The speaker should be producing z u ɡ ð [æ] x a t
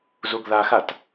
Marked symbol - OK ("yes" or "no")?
no